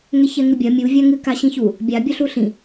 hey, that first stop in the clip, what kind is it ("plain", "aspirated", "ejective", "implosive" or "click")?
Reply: plain